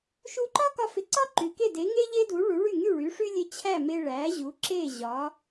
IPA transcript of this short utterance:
ʃ u˧ ǃ ɒ˥ k ɒ˧ f ɪ˩˥ ǀ ɒ˥ ǃ y˩ k e˥˩ d e˩˥ ŋ e˥ ʎ e˥ d u˩˥ ɭ u˩˥ ɭ y˥˩ ŋ y˥˩ ɭ y˩˥ ʂ y˥ lʲ e˧ t͡ɕʰ æ˥˩ m e˧ ɭ æ˩˥ ʑ u˩˥ ǁ e˥˩ ʑ ɒ˩˥

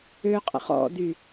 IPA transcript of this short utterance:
ø qʼ ə̰ χ ɔ̰ d y

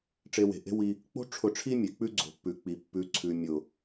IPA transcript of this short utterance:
ʈ͡ʂ e˧ w e̤˨ ʔ e̤˦ w i˧ | k͡p o̤˦ ʈ͡ʂʰ ʊ˧ ʈ͡ʂʰ i˦ mʲ e˨ k͡p ʉ˦ ɡ͡ǀ o̤˨ pː ʉ˨ k͡p i˨ pː ʉ˨ ǀʰ ʉ˨ mʲ ʊ˨

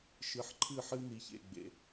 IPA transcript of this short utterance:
ʃ ɨ˨ ħ ǃʰ ɨ˦˨ ħ ɨ˦ n i˨ ç ḛ˨ ɡ͡b ḛ˨

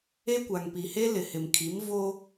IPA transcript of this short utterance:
e˦ kʷ a˨ ŋ p i˨ h e˦ l ɪ˨ h ɪ˨ m kʰ i˨˦ m v o˦

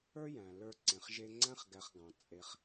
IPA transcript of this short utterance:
ə˞˦ j æ̃˨ l ə˞˧ ǀ ẽ˨ χ ʒ e˧ ŋ͡ǀ æ̃˦ χ ɡ æ˧ χ ɡ ɑ̃˨ t͡sʼ e˧ χ

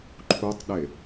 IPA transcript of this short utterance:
ǃʰ u tˤ ɗ e

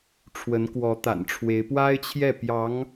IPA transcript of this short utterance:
ʈ͡ʂʰ w ə˧˥ n k w ɔ˧˥ t̪ a̰˨˩ n ʈ͡ʂʰ w e˧˥ ɪ̯ p w a˥ ɪ̯ t͡ɕʰ j ɛ˥˩ p j ɑ˧˥ ŋ

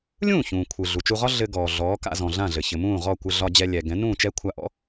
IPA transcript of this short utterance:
lʲ ũː˥˩ ç ũː˩ kʷʰ ɯ˩ ɮ u˩ t͡ʃ u˧ ʁ ɒ˥ ɮ ɘ˧ ɡ ɔː˩ ɮ ɔː˩˥ k a̰˧ z ɔ̃˩ ɮ ã˥˩ ɮ ɘ˩ ç ɘ˩ m ũː˥˩ ʁ ɔ˥˩ kʷ ɘ˧ ɮ ɒ˧ d͡ʑ ɛ˧ lʲ ɛ˩ ɡ ɛ̃˩˥ n ũː˥˩ t͡ʃ ɛ˥ kʷʰ a˧ ʔ ɔ̰˥

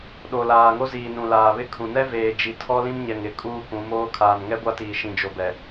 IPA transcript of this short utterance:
ɗ o˨ l aː˨ ŋ o˦ z iː˨ n ũ˨ l aː˨ β ɪ˦ kʰ ũ˨ n ɛ˦ v eː˨ d͡ʒ i˨ tʰ ɔ˦ l ĩ˦ m ɲ ɛ˨ ŋ ɪ˨ kʼ uː˦ k ũ˨˦ m oː˦ kʰ aː˨ n ŋ ɛ˦ ɡʷ a˦ t iː˨ ʃ ĩ˨ d͡ʒ o˨ b ɛ˨

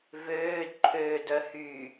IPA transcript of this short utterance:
v øː d ǃʰ øː d œ h y

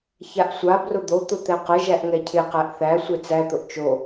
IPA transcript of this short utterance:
ç a ʔ sʷ a b r ʊ d̪ o t̪ ʊ t̪ ɛ q ə ʒ æ ʔ ŋ ɛ cʰ ɪ q æ ʔ θ æ sʷ e t͡s æ t̪ ʊ ʔ t͡ʃ o

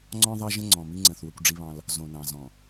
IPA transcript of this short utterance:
ŋ͡ǀ ɔ̃˦ ðˤ ɑ˦ ʒ ə̃˦ ŋ͡ǀ ɔ̃˨ m i˦ ŋ͡ǀ ə̃˨ θ w ə˦ kʷ ɖ͡ʐ i˦ β ɑ̃˦ l | z õ˨ n ɑ̃˨ z ɔ̃˨

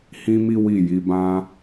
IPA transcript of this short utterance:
h ĩ˦ m i˦ w i˦˨ j i˨˦ b ã˦

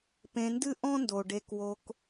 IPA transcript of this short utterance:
p ẽ˨ n d ɨ˦ ʔ ɔ̃˦ n d o˩ ɖ e˨ k w o˨ k

